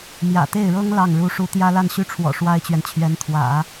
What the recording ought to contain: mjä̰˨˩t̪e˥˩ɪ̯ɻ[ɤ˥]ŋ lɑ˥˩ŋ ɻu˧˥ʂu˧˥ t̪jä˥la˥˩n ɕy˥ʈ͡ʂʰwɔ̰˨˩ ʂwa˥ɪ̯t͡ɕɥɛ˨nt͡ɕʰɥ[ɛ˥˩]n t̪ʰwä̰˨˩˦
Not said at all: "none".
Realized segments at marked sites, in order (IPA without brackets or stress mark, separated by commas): ɤ˥, ɛ˧˥